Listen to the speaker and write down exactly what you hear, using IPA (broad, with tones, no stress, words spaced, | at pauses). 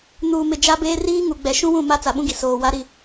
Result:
nuː˨mɪ˨ d͡ʒa˦beː˦ riː˦ŋu˨ɡ͡bɛ˨ ʃũ˦wũ˦˨ ma˦t͡sa˨ɓũ˦ɡi˨ soː˨wa˦ ɾi˦˨